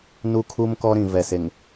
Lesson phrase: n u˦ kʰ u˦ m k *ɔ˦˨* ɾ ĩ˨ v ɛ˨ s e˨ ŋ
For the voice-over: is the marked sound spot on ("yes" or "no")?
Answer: no